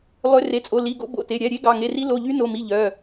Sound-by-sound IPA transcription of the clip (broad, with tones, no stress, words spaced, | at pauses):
lˠø˨˦ re˩˧˩t͡sʼo˩˧˩ li˩˧˩ɡo̰˨˦ bo̰˩˧˩te˩˧˩ ɾʲæ˩˧˩ɾʲe˨˦ ɡɑ˩˧˩ŋe˩˧˩ri˨˦ lo˩˧˩ʎy˨˦no˩˧˩mi˩˧˩ ʎœ˩˧˩